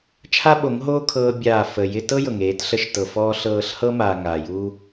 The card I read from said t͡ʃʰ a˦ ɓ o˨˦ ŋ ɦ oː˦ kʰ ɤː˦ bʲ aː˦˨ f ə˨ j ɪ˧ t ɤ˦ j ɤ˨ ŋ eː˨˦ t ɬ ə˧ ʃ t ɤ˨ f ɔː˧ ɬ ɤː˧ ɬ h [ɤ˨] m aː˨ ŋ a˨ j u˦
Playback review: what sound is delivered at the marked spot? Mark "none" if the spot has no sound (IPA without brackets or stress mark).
ɤ˦